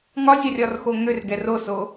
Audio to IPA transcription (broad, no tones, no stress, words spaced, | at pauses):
ŋɒzʲarʲɒrxo ŋørɡɛ roso